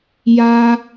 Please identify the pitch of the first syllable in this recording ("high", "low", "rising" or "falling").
high